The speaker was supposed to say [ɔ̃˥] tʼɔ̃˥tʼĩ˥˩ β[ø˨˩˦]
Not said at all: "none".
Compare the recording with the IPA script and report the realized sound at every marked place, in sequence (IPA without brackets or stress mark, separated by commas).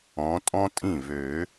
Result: ɔ̃˨˦, ø˨˩˦